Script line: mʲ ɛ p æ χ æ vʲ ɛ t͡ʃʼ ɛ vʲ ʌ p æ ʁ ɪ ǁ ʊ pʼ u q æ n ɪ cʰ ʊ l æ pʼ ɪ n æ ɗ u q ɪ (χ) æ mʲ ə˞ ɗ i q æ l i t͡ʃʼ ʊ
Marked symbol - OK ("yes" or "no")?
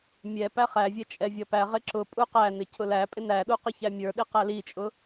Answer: no